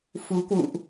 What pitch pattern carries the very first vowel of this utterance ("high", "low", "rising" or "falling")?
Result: rising